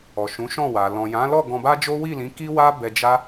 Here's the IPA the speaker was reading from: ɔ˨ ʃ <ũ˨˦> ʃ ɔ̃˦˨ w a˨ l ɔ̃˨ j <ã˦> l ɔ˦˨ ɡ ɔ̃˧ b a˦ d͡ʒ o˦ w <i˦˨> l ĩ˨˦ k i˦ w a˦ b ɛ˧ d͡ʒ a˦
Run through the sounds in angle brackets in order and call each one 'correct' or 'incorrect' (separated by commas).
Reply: correct, incorrect, correct